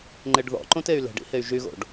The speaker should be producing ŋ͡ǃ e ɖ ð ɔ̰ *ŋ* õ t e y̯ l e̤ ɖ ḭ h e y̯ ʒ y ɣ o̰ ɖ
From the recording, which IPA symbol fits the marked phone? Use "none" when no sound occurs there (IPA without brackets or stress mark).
ǃ